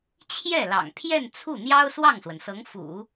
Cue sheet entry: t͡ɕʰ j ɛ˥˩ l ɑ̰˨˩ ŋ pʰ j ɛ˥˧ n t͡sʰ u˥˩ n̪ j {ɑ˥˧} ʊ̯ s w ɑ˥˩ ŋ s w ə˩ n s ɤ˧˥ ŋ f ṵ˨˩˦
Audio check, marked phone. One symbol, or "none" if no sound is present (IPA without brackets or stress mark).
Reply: ɑ˥